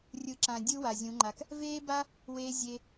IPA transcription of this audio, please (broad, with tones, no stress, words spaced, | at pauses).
rʲɯ˨ǁã˨ dʲɯ˦wa˨zʲũ˨˦ŋ͡ǃa˧k | veː˦ba˦ | weː˧ zʲe˧